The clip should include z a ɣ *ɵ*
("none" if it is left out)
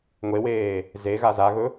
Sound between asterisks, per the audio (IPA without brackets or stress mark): ɵ